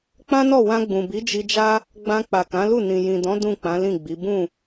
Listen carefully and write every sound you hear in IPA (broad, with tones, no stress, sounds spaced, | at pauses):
k͡p ã˦ n ɔ˦˨ w ã˧ ɡ͡b ũ˨ b i˨˦ d͡ʒ i˧ d͡ʒ a˦ | ɡ͡b ã˧ k͡p a˨ k ã˨˦ l u˦˨ n ĩ˨ j ĩ˨ d ɔ̃˨˦ d ũ˦˨ k͡p ã˨˦ l ĩ˦˨ ɡ͡b i˨˦ b ũ˦˨